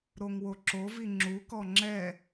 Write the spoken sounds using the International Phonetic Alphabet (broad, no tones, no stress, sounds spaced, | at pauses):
ɾ o ŋ w o ǁ o v i ŋ͡ǁ u k ɔ ŋ͡ǁ ɛ